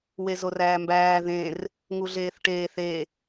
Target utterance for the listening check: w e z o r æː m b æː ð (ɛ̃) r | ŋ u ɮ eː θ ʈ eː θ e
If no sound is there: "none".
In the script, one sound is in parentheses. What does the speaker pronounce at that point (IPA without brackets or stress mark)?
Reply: ẽ